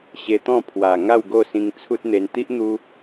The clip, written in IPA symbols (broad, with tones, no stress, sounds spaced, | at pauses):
ɕ e˧ t̪ ɔ̃˥˧ pʰ w a˨˩ ŋ a˥˧ w ɡ o˥˧ s ĩ˧ ŋ t͡sʰ u˦ t̚ n̪ e˧ n t̪ i˦ ʔ n̪ u˧